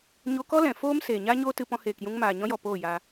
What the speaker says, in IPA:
ɲ o˧ k ɔ˦ l ɛ̃˨ f oː˦ m s eː˨ ɲ a˦ ɲ oː˦ t ɨ˧ p ɔ̃˧ h eː˨ k j ũ˧ ŋ m aː˨ ɲ ɔ̃˧ j ɔ˨ p oː˦˨ j aː˧

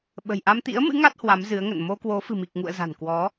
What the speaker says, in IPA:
ɓ ə̤˨˩ j ʔ a˧ m t̪ ḭ˧˥ ə̯ m ɨ̰˧˥ ŋ a˦˥ t̚ h w a˨˦ m z ɨ˨˦ ə̯ ŋ ə̰˧˨ n m o˧ k w o˨˦ f ɨ̤˨˩ m i˨˩ k̚ ŋ ṵ˧˨ ə̯ z a̤˨˩ n k w ɔ˨˦

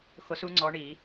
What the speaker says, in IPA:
x o˧˥ s u˧˥ ŋ͡ǀ ɔ˧˥ ɳ i˨˩˦

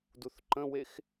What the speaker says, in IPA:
d u θ ǃ ə̃ w e x

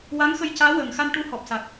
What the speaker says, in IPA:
w a˧˥ ŋ x ə˧ j c aː˧˥ w əː˨˩ ŋ x a˧ n ʈ u˧˥ h ɔ˨˩ p̚ s a˨˩ k̚

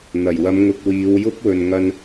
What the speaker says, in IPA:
n̪ ɐ˨˩ j w ɐ˨˧ m ŋ ʊ˨ k̚ w iː˨˧ w j ʊ˥ k̚ w ɵ˨ n ŋ ɐ˧ n

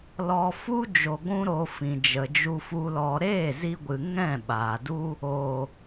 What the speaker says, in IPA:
l ɔ˧ f u˦ d͡ʒ o˧ ɡʷ ũ˦ ɾ o˧ f ĩ˨ d͡ʒ ə˨ d͡ʒ u˧ f u˧ l ɔ˧ ɾ eː˦˨ z i˧ ɡʷ ɨ˨ ŋ ɛ̃˦˨ ɓ aː˨ d u˦ | o˨

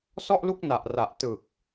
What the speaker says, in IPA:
s ɔ˥˩ ʔ l u˥˩ k̚ n a˨˩ ʔ r a˨˩ ʔ t ɯ˨˩ k̚

